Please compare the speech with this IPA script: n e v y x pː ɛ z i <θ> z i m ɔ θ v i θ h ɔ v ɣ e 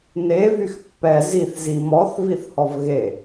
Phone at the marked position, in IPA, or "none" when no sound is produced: θ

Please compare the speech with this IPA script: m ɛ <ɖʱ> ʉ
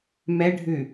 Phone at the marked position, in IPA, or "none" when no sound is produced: ɖʱ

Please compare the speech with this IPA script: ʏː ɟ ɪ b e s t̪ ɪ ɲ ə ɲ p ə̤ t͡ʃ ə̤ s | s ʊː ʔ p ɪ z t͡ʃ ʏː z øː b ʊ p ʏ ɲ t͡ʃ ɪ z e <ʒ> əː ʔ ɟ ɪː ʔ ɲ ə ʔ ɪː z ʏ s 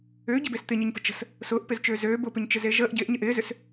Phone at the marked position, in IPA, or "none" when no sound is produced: ʒ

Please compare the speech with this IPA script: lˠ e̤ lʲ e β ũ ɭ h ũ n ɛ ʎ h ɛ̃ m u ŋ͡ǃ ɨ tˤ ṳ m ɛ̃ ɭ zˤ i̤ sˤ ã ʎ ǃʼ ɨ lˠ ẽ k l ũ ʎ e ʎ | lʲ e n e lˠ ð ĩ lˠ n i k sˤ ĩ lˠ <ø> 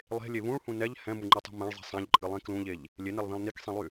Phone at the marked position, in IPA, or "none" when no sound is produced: y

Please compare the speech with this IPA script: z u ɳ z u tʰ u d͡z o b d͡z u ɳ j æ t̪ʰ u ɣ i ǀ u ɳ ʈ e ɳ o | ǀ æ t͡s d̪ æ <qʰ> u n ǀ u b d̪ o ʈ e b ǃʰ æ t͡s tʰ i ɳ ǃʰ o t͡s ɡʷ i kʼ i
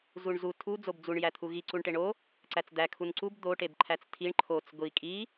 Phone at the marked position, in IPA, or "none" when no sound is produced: kʰ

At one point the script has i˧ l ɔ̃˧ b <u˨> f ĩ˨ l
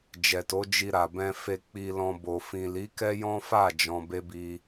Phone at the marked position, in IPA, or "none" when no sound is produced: o˨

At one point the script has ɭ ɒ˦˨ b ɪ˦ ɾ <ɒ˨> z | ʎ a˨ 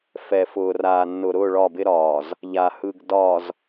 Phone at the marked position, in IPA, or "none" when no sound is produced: ɒː˨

